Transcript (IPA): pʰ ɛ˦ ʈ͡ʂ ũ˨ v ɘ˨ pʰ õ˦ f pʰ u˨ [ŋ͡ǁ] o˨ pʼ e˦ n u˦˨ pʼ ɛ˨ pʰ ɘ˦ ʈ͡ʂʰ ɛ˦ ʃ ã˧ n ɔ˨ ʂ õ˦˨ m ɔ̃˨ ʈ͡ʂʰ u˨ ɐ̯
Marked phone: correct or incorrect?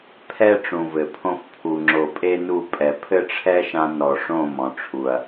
correct